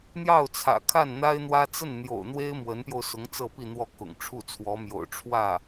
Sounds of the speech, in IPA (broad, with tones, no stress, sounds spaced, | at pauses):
n̪ j ɑ˥˩ ʊ̯ t͡sʰ ä̰˨˩ kʰ a˥˩ n n̪ a˥ ɪ̯ n̪ w ä˥ t͡s ə˥˩ n n̪ j o̰˨˩ ʊ̯ n̪ w e˥ ɪ̯ m w ə˧˥ n p j o˧ ʊ̯ s ʊ˧˥ ŋ t͡s ɤ˥˧ p i˥˧ n̪ w ɔ˥˩ k ʊ̰˨˩ ŋ ʈ͡ʂʰ u˥˩ t͡sʰ w ɔ˧˥ m j o̰˨˩ ʊ̯ ʈ͡ʂʰ w ä˥˩